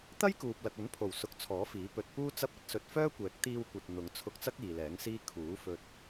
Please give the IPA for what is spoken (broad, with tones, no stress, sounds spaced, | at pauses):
t̪ ɐ˥ j k uː˨ p̚ l ɐ˨ k̚ ɵ˨˥ n pʰ o˨˩ w s ʊ˨ k̚ t͡sʰ ɔː˨˥ f iː˨˥ p ɵ˨ t̚ p uː˥ t͡s ɐ˥ p̚ ɐ˥ t̚ s ɵ˧ t̚ f œː˥ kʷ ɛː˨˥ k̚ t̪ iː˧ w kʷ ɐ˨ t̚ n̪ ʊ˨˧ ŋ t͡sʰ ʊ˧ k̚ t͡s ɐ˥ k̚ iː˨ l ɛː˨˥ ŋ s iː˥ kʰ uː˨˥ f ɵ˧ t̚